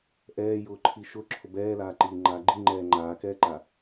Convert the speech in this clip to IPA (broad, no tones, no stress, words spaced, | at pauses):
ʔɛːjʊːǃʰi ʃʊ ǁʰʊbɛːlaːǃiː ŋ͡ǃaːɡ͡ǃi ŋ͡ǃɛːŋ͡ǃaːkɛːǃa